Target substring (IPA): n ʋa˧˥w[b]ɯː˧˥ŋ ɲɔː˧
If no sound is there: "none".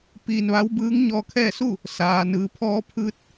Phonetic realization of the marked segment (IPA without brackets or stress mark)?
b